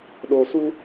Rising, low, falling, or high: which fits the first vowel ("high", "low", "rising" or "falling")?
low